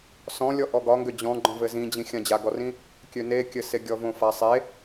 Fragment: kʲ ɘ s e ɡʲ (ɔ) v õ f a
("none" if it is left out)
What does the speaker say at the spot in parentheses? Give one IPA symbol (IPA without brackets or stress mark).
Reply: ɔ